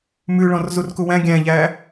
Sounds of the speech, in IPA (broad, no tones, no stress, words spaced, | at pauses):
mʉɭɔ̃r zurkuwæ̃ ɡʲæ̃ʎæ